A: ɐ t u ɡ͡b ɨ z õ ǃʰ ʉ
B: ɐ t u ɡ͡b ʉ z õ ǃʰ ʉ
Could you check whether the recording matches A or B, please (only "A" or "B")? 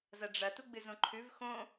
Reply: A